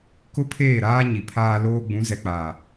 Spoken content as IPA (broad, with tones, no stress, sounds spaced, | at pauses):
k ʊ˦ pʰ eː˦˨ ɾ aː˦ ɲ i˨ pʰ aː˦ l oː˦ ɡ͡b ũ˨˦ z ɛ˨ k͡p aː˨